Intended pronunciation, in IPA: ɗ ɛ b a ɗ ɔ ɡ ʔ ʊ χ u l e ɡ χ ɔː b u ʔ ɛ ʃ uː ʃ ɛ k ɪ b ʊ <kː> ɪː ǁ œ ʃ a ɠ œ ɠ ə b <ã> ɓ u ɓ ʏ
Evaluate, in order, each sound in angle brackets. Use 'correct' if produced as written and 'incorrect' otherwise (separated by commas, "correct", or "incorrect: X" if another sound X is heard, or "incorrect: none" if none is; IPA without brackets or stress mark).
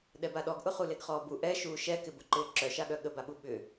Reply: incorrect: ǃ, incorrect: a